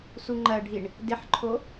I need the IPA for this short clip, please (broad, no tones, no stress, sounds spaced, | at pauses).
s u ŋ͡ǃ ɜ ɖʱ i ɳ | d ɪ ħ ǃʰ o